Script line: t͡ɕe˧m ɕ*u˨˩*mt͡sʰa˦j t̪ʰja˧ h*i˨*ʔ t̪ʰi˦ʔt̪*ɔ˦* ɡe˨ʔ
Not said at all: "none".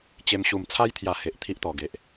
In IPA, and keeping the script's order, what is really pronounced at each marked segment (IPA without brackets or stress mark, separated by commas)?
u˨˩, e˨, ɔ˨˩